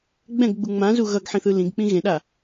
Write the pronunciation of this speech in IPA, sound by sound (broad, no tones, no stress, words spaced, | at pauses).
ɡ͡bɛ̃ɡɡ͡bu ŋ͡mãzu ɣʌɡħĩθɯ lĩɡk͡pĩ ɣẽɗa